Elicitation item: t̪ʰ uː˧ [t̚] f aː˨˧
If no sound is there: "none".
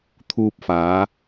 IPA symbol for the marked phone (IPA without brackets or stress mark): p̚